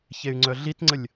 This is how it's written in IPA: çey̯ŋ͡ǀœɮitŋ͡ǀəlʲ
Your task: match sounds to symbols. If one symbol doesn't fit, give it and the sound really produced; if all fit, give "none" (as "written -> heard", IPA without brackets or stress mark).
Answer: none